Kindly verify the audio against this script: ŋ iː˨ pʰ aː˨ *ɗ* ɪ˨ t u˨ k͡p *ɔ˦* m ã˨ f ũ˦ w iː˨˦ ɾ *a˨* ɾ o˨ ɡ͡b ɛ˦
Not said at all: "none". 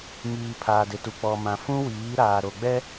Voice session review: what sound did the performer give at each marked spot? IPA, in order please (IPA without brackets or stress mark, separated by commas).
d, ɔ˨, aː˨